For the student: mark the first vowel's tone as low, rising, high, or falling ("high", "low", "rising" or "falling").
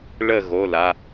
falling